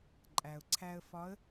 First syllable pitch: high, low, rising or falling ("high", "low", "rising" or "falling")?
low